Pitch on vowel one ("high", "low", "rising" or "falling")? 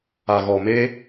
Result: low